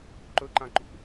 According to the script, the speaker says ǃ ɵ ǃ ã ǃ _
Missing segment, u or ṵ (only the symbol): ṵ